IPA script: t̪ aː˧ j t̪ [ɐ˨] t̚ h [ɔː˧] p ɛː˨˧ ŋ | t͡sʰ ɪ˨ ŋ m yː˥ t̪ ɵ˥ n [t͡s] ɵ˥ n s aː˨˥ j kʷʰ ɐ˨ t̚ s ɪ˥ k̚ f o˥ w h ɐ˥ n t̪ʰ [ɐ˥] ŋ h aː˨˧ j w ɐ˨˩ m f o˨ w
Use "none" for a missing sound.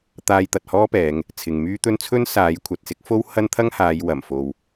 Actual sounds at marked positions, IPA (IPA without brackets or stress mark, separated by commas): ɐ˨, ɔː˥, t͡sʰ, ɐ˥